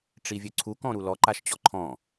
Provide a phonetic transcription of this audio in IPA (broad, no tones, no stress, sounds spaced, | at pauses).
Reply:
ʈ͡ʂ i vʲ ø ǀʰ u k ɔ̃ ɾ u l ɔ ǃ a ʃ t͡ɕ ɔ ǃʰ ɔ̃